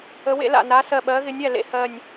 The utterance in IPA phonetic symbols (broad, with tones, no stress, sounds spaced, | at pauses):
ə˨˥ w ḛ˨˥ l a̰˧˩ n a˨˥ s ɜ˧˩ ɓ ɜ˨˥ ɣ ɪ˨˥ nʲ æ˧˩ l ḛ˨˥ h ɜ˧˩ nʲ